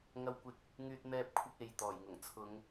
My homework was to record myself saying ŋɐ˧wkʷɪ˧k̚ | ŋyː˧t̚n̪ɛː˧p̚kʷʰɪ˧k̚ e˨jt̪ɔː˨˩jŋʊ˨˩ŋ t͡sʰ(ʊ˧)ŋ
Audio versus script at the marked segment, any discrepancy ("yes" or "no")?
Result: yes